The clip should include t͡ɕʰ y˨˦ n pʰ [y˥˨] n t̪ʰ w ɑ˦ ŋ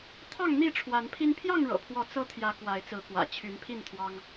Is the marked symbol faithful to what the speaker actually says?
no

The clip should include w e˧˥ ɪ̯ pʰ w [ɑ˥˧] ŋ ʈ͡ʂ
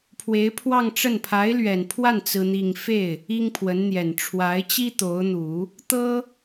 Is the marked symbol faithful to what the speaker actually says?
yes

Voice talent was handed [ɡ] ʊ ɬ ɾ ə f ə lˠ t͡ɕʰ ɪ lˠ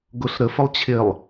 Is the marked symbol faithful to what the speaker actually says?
yes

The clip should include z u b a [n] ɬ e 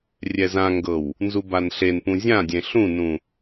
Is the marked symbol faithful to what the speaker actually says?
yes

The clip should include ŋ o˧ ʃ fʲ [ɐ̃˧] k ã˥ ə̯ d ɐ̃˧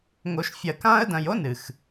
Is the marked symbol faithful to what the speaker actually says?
no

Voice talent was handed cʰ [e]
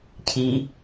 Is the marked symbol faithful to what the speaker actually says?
no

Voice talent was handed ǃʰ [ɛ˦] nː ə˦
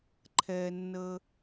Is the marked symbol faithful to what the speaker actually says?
yes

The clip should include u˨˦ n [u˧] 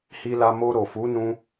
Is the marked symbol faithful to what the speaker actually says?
no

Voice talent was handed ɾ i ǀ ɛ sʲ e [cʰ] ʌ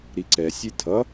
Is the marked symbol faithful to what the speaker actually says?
no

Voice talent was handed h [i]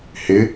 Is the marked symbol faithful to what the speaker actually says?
no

